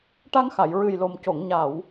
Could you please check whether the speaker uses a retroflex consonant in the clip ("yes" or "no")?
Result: yes